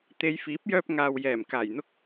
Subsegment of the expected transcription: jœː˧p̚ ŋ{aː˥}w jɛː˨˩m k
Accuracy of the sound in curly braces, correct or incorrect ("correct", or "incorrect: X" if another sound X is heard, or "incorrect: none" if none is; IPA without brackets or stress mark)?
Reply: incorrect: aː˨